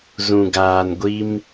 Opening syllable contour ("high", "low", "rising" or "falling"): low